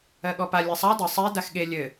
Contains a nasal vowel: no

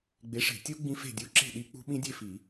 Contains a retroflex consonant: yes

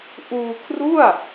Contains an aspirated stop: yes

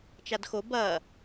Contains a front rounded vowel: no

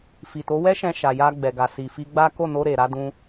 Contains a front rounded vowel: no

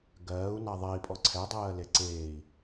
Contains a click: yes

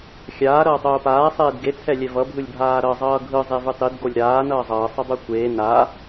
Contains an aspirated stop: yes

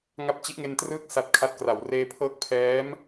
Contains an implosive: no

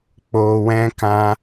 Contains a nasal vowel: yes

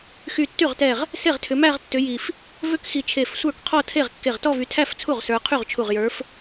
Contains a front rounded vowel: yes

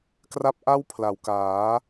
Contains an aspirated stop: yes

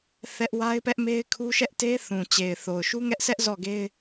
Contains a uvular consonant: no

